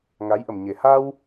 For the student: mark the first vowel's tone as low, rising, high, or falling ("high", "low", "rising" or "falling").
rising